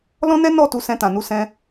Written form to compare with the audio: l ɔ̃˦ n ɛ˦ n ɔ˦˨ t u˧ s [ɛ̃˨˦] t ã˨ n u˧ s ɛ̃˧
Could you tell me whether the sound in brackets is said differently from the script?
yes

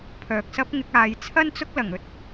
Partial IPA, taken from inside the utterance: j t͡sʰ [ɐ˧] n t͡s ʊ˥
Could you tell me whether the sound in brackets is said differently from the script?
yes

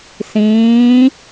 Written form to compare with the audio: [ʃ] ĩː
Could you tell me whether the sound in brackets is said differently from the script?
yes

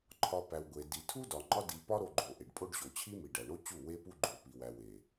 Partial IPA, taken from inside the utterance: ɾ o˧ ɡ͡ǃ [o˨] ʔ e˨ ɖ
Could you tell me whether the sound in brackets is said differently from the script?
no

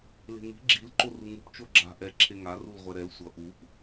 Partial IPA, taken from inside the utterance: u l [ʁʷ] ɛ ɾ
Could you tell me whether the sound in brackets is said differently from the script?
no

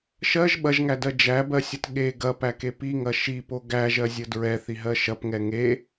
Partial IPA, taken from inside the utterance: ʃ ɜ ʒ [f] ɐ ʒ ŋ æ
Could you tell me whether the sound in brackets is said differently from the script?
yes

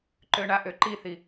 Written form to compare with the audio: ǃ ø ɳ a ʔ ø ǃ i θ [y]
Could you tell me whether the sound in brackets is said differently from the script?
yes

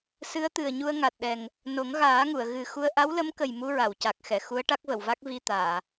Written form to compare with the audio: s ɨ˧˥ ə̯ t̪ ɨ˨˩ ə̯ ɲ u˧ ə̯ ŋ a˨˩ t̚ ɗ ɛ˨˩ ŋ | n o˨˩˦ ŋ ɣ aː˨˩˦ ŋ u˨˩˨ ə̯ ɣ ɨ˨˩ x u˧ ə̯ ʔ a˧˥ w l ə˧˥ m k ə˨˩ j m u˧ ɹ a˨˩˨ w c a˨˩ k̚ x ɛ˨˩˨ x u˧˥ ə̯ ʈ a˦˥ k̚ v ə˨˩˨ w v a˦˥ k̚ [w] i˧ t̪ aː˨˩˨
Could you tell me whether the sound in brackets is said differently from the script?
yes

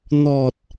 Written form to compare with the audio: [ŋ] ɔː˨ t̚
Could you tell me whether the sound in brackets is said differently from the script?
yes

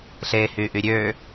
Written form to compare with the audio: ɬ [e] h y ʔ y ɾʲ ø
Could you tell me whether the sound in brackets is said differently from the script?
no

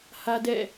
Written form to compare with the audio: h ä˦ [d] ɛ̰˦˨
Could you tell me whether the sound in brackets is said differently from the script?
no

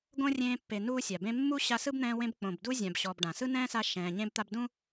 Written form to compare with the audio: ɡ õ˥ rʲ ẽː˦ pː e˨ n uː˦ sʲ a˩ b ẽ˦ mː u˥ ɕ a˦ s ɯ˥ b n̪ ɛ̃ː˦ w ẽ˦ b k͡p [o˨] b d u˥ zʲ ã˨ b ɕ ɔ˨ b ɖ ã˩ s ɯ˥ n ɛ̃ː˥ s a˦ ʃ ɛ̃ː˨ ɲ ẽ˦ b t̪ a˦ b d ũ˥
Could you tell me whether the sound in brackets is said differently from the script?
yes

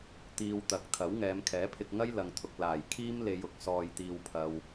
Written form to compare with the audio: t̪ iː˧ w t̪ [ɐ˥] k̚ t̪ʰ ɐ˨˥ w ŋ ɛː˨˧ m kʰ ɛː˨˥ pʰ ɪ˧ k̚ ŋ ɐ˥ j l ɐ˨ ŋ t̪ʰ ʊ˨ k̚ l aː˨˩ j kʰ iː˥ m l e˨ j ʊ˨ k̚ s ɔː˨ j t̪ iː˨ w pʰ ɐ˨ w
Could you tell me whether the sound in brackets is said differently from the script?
yes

